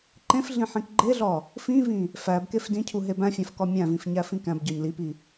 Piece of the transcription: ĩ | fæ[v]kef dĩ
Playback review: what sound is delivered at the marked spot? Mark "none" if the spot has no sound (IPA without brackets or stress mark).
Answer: b